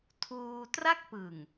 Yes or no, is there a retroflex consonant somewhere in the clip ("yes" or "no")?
no